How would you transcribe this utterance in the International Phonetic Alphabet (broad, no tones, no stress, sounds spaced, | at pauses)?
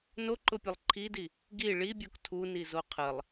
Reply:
n o ǃ ʊ pʲ ə lˠ ǃʰ i d i | ɡ i ɭ i bʲ o k tʰ u n i z o qʰ ə lˠ